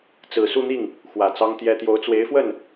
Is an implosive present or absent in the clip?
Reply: absent